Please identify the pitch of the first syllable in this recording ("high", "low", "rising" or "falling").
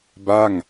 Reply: falling